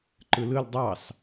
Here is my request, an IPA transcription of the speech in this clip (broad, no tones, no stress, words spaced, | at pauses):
ǃɯlɯl dˤɑs